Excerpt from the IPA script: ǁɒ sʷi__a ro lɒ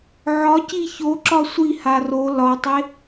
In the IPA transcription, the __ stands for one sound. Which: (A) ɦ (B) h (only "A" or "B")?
B